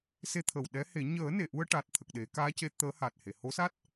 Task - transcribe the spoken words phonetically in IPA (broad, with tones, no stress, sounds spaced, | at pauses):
s e˧ t̪ʰ ə˨˩ w ɗ ɛ˧˥ h e˨˩˦ ɲ əː˨˩˦ n e˨˩˨ ʔ u˧ ə̯ ʈ a˨˩ t̚ t̪ʰ ə˨˩ k̚ ɗ e˨˩˦ k aː˧˥ c e˧˥ t̪ əː˧˥ h a˨˩ t̚ h e˨˩˨ h o˧˥ s a˦˥ t̚